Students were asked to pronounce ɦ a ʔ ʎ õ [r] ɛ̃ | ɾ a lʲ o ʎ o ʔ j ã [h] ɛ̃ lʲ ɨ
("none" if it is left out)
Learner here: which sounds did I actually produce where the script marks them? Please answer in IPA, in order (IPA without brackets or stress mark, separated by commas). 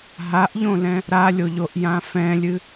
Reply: l, f